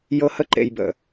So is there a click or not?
yes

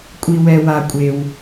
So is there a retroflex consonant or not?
no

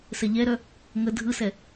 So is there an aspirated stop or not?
no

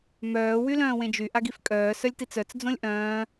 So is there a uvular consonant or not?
no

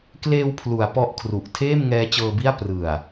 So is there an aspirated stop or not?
yes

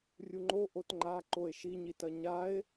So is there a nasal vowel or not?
no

